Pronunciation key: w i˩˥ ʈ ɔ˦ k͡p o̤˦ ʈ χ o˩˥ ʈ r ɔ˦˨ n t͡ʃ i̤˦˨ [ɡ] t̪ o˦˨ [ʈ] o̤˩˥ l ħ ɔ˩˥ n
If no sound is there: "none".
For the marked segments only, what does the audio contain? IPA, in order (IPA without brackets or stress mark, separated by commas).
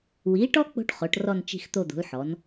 x, d̪